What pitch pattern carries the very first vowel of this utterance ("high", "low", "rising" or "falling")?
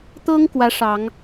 high